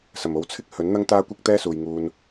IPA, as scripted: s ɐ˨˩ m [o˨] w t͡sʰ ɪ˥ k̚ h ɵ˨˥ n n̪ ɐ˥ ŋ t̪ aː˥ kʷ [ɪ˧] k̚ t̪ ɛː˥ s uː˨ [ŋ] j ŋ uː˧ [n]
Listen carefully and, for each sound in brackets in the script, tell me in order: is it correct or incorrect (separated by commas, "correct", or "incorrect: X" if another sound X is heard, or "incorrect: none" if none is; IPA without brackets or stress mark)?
correct, incorrect: ɪ˥, incorrect: none, correct